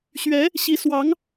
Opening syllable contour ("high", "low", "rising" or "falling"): rising